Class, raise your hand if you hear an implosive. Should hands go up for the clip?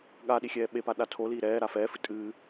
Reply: yes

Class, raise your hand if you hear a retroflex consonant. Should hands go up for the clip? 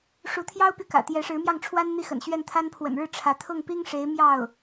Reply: yes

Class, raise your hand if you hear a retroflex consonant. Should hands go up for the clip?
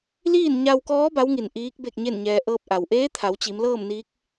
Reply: no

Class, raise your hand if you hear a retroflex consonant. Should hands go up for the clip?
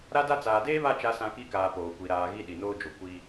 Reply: no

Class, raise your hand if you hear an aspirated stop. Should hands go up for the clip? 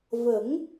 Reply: no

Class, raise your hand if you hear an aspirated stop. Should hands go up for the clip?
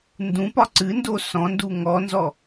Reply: no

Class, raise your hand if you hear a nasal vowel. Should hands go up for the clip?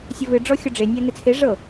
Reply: no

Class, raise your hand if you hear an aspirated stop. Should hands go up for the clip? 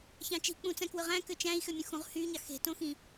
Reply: no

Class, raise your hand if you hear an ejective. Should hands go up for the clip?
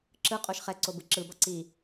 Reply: yes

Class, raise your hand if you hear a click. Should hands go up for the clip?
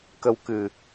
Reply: no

